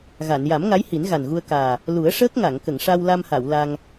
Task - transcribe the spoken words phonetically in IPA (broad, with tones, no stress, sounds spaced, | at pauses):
ɣ a˨˩˨ n j a˨˩˦ m ŋ a˧˥ j h i˨˩˦ n ɣ a˨˩ n ɣ u˧ ə̯ k aː˨˩ | l u˨˩˦ ə̯ ʂ əː˦˥ k̚ ŋ a˨˩˨ ŋ k ə˨˩˨ ŋ ʂ a˧ w l a˧ m h a˨˩˨ w l a˧ ŋ